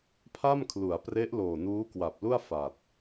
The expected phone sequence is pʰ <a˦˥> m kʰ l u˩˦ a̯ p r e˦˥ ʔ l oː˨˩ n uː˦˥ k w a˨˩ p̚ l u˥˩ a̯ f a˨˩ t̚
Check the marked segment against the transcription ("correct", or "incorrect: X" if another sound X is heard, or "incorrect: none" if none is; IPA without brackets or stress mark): incorrect: a˥˩